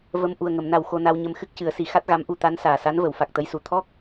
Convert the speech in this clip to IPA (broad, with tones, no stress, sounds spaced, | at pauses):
v ə˧ m ʔ u˨˩ ə̯ ŋ ə˨˩˨ m n a˨˩ w x o˧ n a˧ w ɲ ə˧ m x ɨ˦˥ k̚ c ɨ˨˩˦ ə̯ s i˨˩˦ x a˦˥ t̚ ɣ a˧˥ m ʔ u˧ t̪ a˧˥ n s aː˨˩ s a˧˥ n v ə˨˩˦ w f a˨˩ k̚ t̪ ə˧˥ j s u˨˩ t̪ʰ ɔ˦˥ k̚